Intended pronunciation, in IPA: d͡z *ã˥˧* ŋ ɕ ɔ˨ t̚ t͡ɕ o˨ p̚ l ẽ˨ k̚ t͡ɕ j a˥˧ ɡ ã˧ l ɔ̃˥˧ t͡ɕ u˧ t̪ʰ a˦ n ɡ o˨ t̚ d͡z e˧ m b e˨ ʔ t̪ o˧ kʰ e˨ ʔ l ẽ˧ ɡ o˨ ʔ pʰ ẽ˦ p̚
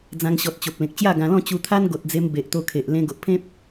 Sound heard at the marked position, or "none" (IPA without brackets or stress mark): ã˧